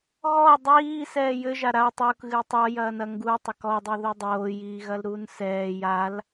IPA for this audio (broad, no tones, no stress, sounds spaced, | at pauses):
ɣ ɔ dˤ iː s ɛː j ɘ ʒ a ɾ a tˤ u k ɣ ɨː tˤ ɔ j ɐː n ɐ ŋ ɡ u tˤ ɐ k ɔ dˤ i ð o dˤ oː j iː ɣ ɐ l ɾ uː n s ɛː j a l